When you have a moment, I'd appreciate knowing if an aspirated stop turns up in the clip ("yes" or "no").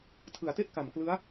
yes